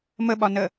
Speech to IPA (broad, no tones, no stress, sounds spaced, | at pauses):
m ə ɓ ɒ n ə